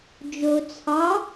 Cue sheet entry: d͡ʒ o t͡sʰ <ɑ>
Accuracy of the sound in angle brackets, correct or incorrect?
correct